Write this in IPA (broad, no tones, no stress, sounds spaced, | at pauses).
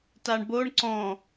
t a ɳ b o ɳ ǀ ɔ̃